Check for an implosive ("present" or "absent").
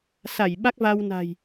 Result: present